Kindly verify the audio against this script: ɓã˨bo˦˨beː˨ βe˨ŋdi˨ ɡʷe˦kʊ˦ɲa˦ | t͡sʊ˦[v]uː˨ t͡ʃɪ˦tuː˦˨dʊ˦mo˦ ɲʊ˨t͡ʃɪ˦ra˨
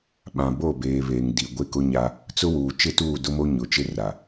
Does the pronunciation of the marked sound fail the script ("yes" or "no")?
yes